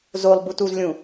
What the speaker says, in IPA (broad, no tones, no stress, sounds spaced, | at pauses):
z o lˠ b u t u z lʲ ũ